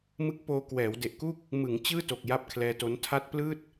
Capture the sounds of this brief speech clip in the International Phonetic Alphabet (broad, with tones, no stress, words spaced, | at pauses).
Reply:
mɯ˦˥k̚poː˧kwɛː˩˦w de˨˩ʔku˥˩k̚ | mɯ˩˦ŋ t͡ɕɯː˥˩to˨˩k̚ ja˥˩p̚kʰlɛː˧to˦˥n tʰa˦˥t̚plɯː˥˩t̚